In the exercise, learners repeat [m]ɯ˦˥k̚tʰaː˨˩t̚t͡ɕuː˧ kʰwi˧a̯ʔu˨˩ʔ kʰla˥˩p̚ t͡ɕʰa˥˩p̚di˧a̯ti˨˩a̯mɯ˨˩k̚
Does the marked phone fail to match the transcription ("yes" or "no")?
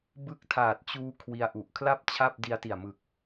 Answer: yes